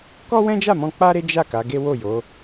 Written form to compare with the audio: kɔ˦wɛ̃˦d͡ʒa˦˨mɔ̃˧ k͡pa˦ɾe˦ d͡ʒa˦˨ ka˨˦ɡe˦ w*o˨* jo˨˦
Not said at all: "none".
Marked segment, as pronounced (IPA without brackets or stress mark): o˦˨